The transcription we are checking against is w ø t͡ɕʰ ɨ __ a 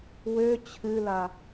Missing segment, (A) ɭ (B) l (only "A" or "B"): B